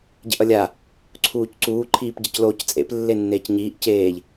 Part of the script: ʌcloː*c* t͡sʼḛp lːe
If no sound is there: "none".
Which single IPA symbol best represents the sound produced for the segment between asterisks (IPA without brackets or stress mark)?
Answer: c